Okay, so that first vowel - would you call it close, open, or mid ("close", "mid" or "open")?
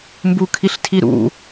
close